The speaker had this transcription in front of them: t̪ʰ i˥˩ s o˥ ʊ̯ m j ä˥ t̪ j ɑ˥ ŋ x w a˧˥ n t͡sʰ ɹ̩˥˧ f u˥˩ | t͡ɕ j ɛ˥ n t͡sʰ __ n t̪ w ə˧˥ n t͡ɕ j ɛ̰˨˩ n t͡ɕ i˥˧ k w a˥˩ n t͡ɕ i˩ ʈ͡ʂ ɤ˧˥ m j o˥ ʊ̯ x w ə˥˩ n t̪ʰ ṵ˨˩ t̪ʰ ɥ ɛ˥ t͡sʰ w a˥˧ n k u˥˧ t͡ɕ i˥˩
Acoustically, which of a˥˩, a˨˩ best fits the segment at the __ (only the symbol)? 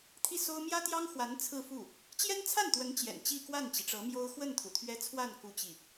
a˥˩